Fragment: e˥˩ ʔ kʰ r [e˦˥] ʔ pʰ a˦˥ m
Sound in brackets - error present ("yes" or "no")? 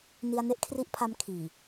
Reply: yes